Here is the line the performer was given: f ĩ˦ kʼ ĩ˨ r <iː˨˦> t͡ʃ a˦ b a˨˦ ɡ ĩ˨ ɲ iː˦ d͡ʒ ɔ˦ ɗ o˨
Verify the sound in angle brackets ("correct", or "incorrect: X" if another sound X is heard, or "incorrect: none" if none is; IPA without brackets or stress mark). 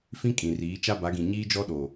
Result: correct